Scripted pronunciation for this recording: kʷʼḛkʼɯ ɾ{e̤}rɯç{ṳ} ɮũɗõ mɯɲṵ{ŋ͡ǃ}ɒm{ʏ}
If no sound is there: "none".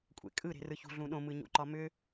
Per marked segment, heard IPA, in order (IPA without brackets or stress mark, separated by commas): e̤, ṳ, ǃ, ʏ